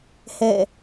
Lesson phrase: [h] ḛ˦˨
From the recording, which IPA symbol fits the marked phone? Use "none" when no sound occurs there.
h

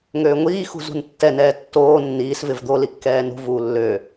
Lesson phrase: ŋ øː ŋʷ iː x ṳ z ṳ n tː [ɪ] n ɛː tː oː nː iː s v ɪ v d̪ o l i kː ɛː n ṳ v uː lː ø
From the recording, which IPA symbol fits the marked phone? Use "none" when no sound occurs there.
ɛ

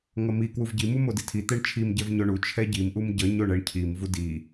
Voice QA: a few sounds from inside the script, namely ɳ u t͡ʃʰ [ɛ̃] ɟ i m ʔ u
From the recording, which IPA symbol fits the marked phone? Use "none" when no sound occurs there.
ɛ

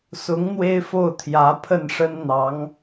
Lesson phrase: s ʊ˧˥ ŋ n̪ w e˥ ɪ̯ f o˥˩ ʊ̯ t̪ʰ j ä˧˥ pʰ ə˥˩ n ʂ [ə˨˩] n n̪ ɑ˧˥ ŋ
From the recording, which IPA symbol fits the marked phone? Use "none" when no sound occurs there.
ə˥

